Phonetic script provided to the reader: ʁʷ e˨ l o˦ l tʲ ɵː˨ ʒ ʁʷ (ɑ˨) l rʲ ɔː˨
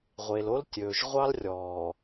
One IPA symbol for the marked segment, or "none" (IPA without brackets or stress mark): ɑ˦